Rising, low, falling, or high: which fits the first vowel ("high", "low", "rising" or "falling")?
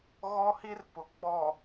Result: high